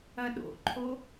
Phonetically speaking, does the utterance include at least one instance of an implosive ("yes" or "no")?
yes